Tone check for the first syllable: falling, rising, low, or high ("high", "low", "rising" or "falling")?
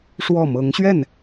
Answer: falling